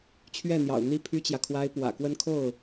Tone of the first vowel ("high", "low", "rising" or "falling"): falling